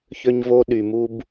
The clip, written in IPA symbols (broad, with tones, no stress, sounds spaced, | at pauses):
ç ø˧ ɲ v o˧ ɗ y˩ m u˧ b